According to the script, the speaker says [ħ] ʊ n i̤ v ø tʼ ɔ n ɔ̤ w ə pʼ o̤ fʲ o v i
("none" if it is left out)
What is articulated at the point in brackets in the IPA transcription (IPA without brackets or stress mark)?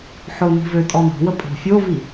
ħ